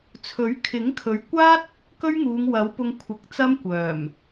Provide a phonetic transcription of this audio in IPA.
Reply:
t͡sʰɵ˨˥ɥ kʰɪ˨˥ŋkʰɵ˨˧ɥkʷaː˥t̚ | kɵ˥ɥŋuː˨˧ŋwɐ˨˥wpʊ˧ŋ kʷʰɪ˨˥k̚t͡sɐ˥mkʷœː˨˩m

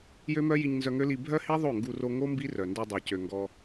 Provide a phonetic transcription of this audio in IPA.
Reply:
jø˦mœ˦ji˧ɲ nzœ˧ŋø˦li˧ bʱœ˦hi˦ ðˤo˦˨ŋɡu˧ro˧ ŋo˦ mbi˦rœ˨ndø˧ dˤa˨cø˨ŋɡɔ˧

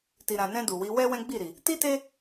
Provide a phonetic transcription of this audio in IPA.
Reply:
ti˨ɾã˨nɛ̃˧ du˨wi˨˦ wɛ˦ wɛ̃˦ɡ͡bi˦˨ɾi˨ | ti˦te˦

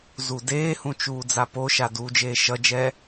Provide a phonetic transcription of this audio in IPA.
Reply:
zudeːhũ t͡ʃuːd͡zapoʃa duːd͡ʒeːʃʌd͡ʒɛ

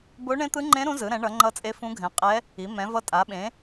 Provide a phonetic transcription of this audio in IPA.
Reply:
bo˧˥ɳẽ˧˥t̪ɯ˧˥ŋ͡ǃẽ˧˥ ɾũ˧˥zɯ˩˥ɾɛ̃˩˥ ɳʌ˩˥ŋ͡ǃʌ˧˥t͡sʼe˧˥ fũ˧˥ɡʱɛ̃˩˥ qʼɛ˧˥ | i˩˥ mɛ̃˩˥vʌ˧˥tʼa˩˥ɓẽ˩˥

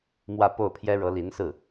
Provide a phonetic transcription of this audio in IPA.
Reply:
mwä˥˧po˥˩ʊ̯pʰjɛ˥ ɻɤ˧˥li˧˥nsɹ̩˥˩

